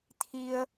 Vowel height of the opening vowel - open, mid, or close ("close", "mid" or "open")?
close